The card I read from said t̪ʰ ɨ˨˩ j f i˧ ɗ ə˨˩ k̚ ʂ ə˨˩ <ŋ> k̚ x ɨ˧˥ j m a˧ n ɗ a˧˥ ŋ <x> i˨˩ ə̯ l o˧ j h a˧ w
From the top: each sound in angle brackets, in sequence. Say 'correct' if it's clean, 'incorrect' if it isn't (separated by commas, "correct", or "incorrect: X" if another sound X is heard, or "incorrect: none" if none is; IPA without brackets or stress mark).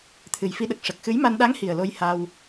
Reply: incorrect: none, incorrect: h